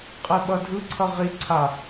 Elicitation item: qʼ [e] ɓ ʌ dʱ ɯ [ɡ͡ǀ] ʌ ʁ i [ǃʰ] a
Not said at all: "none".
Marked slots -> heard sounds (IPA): e, ǀʰ, ǀʰ

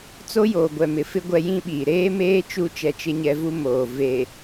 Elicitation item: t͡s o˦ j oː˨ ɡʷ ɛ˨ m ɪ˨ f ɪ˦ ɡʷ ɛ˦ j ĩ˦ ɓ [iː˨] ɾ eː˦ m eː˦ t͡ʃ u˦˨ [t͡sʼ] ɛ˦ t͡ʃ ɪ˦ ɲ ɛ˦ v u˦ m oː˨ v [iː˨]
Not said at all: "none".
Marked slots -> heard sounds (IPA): iː˨, t͡ʃ, eː˨

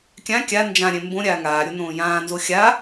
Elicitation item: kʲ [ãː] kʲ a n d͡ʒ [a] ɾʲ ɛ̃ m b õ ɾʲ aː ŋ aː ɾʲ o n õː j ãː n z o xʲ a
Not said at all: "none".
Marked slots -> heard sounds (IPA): ã, ã

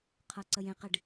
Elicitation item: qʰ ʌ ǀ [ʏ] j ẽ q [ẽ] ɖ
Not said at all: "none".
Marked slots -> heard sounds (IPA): ə, e

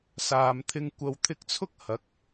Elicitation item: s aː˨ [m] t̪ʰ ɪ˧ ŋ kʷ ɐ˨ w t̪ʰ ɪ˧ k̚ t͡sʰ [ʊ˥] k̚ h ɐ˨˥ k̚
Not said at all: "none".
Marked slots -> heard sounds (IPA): m, ʊ˥

